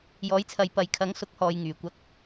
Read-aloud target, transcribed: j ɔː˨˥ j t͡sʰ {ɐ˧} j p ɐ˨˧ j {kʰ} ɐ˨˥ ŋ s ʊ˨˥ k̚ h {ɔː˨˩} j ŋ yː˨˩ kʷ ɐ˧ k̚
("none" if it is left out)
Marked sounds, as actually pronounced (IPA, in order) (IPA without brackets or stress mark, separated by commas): ɐ˨˧, kʰ, ɔː˨